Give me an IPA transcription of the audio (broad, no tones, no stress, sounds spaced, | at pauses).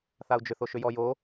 θ a u̯ d͡ʒ ʏ θ o ʃ ʏ j ɔ j o